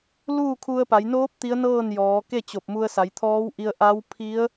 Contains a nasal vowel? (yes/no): no